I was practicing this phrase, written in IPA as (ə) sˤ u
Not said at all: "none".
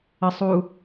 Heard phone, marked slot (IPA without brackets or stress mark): ə